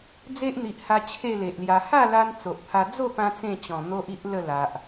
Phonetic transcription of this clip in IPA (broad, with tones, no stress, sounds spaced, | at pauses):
d͡z e˦ ʔ n̪ i˨ ʔ h a˧ t͡ɕʰ e˥˧ l e˨ ʔ l j a˧ h a˥˧ l a˧ n t͡s o˨ ʔ pʰ a˧ d͡z o˥˧ p ã˧ t͡s ẽ˥˧ t͡ɕ ɔ̃˨˩ n̪ o˦ ʔ i˦ ʔ l ə˥˧ l a˨ ʔ